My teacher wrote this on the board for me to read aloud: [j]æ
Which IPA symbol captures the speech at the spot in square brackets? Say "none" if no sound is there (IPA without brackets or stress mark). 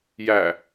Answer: j